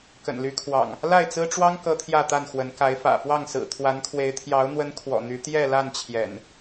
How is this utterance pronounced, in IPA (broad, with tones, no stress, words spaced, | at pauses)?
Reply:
kə̰˨˩nly˨˦kʰwɑ̰˨˩ŋ | la˥˨ɪ̯t͡sɹ̩˦ʈ͡ʂwɑ˦ŋ kɤ˦t̪ʰjä˥˨t̪a˥˨nxwə˨˦n ka˨˦ɪ̯fä̰˨˩fwɑ˥˨ŋsɹ̩˨˩ t̪ʰwa˨˦nkʰwe˨˦ɪ̯ t̪ʰjɑ˨˦ʊ̯n̪wə˨˦n kʰwɔ̰˨˩n̪y˨˦ t̪jɛ˥˨la˥˨n t͡ɕʰjɛ̰˨˩n